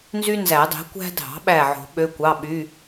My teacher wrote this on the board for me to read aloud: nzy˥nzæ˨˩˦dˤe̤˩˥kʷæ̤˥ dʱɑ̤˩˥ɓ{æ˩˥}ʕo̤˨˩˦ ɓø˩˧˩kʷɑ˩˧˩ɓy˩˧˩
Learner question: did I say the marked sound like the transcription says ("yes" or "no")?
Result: no